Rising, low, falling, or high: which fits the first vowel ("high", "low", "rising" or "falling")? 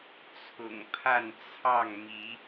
low